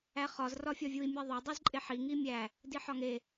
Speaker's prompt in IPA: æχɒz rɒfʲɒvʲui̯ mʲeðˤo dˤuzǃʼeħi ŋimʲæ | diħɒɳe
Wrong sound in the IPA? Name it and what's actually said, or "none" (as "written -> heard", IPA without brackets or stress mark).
ɳ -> ŋ